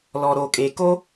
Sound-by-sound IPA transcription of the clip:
l ɔ˩ ɾ o˩ kʼ e˩ k o˥

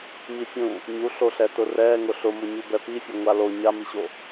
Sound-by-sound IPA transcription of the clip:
m i fʲ ũ | ɲ u ɬ o ɬ ɛ t ʊ r ɛ ŋ ʊ ɬ ʊ m ʊ ɲ u b ɛ p i fʲ ʊ ŋʷ a l o ɲ a m i ɕ o

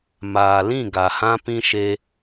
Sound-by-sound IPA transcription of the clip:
m aː˨ l ĩ˦˨ ɡ a˨ h ã˦ p ĩ˦ ʃ e˧

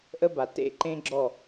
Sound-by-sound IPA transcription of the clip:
ʔ ə˦ b a˨ t ḛ˦˨ ǃ ẽ˦ ɡ͡ǁ ɔ˦˨

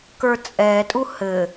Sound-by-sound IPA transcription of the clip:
k ə˞ t͡sʼ ɛ tʼ u h ɘ

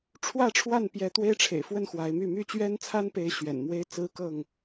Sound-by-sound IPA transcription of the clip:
ʈ͡ʂʰ w ä˥˨ ʈ͡ʂʰ w a˥˨ n p j ɛ˨˦ t̪ w e˦ ɪ̯ ʈ͡ʂʰ ḛ˨˩ ɪ̯ f w ə˥˨ n x w a˨˦ ɪ̯ m y˥˨ m y˥˨ t͡ɕ ɥ ɛ˦ n t͡sʰ a˦ n p e˨˦ ɪ̯ ɕ ɥ ɛ̰˨˩ n m w e˦ ɪ̯ t͡s ɹ̩˦ k ɤ˥˨ ŋ

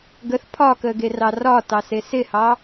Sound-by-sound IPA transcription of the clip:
ɡ ə θ pʰ ɒ k ə ɡ e r ɑ r ɒ t ɑ s e s ɪ h ɑ

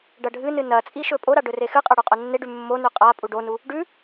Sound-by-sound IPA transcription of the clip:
ɖ ɐ ɖʱ ɨ n ɨ n ɐ t͡sʼ i ʃ ɵ pʼ o ɾ a ɖ ɵ r e x ɨ qʼ ɐ ɽ u qʼ o nː e ɖ ʉ mː o n ʉ qʼ a pʼ u ɖ o n u | ɖ ʉ

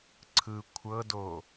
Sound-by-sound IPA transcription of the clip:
ǀʰ ɯ kʷʰ ɤ d o

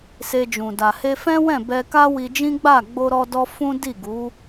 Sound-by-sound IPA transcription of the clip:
s e˧ d͡ʒ ũ˨ d a˨ h e˧ f ɛ̃˦ w ɛ̃˦˨ b ɛ˧ k a˦ w i˧ d͡ʒ ĩ˦ ɡ͡b a˦˨ ɡ͡b o˧ ɾ ɔ˧ d ɔ˧ f ũ˦ d i˦˨ ɡ u˨˦

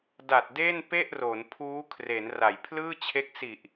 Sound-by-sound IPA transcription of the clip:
d a˨˩ t̚ d eː˥˩ n p e˥˩ ʔ r o˩˦ n pʰ uː˦˥ kʰ r e˩˦ n r a˩˦ j pʰ l ɯː˥˩ t͡ɕʰ e˦˥ k̚ s i˨˩ ʔ

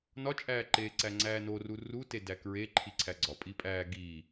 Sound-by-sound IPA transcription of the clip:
n ɒ t͡ʃʼ æː ǃ eː ǀ æ ŋ͡ǀ æː n o r u r u t e d æ k ɹ e ǃʰ i ǀʰ æ ɡ͡ǀ ɒ pʼ i pʼ æː ɡ iː

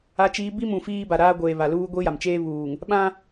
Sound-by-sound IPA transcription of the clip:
a˦ t͡ʃ iː˦ b i˦ m ũ˨ f iː˦ b a˨ ɾ aː˦ ɡʷ eː˨ β a˨ l uː˦ ɡʷ i˦ j a˨ m t͡ʃ eː˦ β uː˨ ŋ | ɓ ã˦

